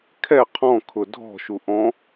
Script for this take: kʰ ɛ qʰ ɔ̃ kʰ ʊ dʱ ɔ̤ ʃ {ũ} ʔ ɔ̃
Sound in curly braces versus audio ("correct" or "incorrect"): incorrect